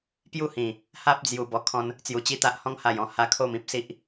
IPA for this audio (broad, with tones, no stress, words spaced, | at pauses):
pju˥˧hĩ˨˩ | ha˦p̚d͡zju˨˩ bɔ˧kʰɔ̃˦n | t͡sju˨˩t͡ɕi˥˧t̪a˦ʔhɔ̃˦ŋ ha˨˩jɔ̃˥˧ ha˧kʰo˥˧mĩ˦p̚si˦ʔ